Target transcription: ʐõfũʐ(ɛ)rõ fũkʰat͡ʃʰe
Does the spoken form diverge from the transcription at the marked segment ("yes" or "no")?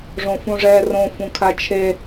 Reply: no